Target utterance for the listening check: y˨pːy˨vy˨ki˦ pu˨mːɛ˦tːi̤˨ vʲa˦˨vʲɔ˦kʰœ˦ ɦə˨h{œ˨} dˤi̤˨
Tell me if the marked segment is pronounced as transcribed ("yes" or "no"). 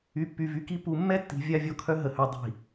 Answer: yes